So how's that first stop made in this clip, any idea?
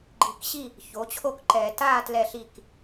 click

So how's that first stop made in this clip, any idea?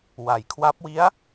aspirated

